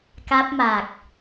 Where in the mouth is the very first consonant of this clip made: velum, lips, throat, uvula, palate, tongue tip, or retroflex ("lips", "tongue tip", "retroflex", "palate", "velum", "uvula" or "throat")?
velum